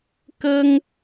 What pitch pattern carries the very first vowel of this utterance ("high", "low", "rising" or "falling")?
high